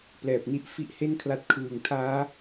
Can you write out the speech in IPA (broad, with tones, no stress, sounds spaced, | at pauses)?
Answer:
p l ɛː˨˩ p̚ n i˦˥ ʔ f i˦˥ ʔ h e˥˩ n kʰ l a˦˥ t̚ kʰ ɯː˨˩ ŋ tʰ aː˦˥